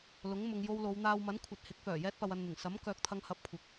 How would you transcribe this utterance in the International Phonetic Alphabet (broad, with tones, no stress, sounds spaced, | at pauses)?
l ʊ˨˥ ŋ m ʊ˨˧ ŋ j o˧ w l o˨˧ w n̪ aː˧ w m ɐ˨˥ n kʷʰ ɐ˨ t̚ h ɪ˨˥ k̚ f œː˨˩ j ɛː˥ t̚ p ɐ˧ w ɐ˧ n n̪ ɪ˨˩ ŋ s ɐ˨˥ m k œː˨ k̚ t̪ʰ ɐ˧ ŋ h ɐ˧ p̚ kʷʰ ɪ˨ k̚